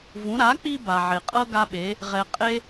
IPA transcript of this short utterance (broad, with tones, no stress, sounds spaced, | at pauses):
v ũ˩˥ ɾ a˩˥ k͡p i˧ b a˩ ʕ e˩ qʼ ɤ˥ ɡ a˥ ɓ e˩˥ | ʁ ɛ˧ qʼ e˥